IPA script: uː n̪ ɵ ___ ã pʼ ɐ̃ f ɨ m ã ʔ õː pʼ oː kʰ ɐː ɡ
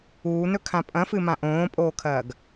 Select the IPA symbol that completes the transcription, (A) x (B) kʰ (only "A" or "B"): B